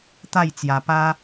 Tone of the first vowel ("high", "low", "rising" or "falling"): falling